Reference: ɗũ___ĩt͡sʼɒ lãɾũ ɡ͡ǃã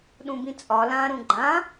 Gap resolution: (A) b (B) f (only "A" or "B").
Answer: A